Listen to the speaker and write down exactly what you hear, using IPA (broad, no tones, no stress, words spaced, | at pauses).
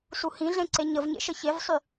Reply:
suhĩɮẽ ǀeɲəv ɲḛʃəçevsˤy